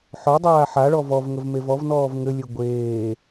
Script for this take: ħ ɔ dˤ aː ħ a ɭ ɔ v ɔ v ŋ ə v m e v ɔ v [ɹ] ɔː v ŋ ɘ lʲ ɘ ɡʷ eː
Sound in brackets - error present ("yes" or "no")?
yes